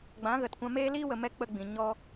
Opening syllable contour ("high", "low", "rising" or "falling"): rising